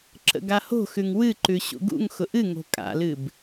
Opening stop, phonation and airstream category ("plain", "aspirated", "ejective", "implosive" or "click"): click